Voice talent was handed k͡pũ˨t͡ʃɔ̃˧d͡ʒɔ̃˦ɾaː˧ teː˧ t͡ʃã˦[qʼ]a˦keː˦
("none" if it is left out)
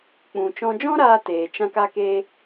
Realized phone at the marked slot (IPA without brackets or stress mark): k